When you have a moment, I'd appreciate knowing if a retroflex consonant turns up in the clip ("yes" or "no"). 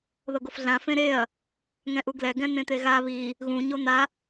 no